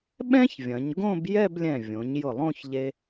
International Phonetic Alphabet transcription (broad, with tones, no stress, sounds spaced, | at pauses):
ɓ ɛ̃˥ ç vʲ ɐ̃˩˧ ɲ ɡ õ˥˧ b j ɛ˥˧ b lʲ ɛ̃˧˩ vʲ õ˩˧ ɲ j ʊ˧˩ lˠ õ˥˧ ç ʎ e˧